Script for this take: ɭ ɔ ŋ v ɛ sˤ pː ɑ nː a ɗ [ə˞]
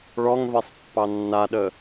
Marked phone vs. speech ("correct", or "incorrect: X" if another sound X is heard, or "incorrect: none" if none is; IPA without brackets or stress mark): incorrect: ə